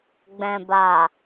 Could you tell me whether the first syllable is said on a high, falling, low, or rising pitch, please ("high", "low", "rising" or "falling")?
low